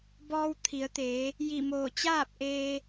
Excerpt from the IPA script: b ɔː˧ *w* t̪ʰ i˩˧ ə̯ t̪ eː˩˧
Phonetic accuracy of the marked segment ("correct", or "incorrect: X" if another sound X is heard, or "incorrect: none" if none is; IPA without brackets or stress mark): correct